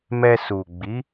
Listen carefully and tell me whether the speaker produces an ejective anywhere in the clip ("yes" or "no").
no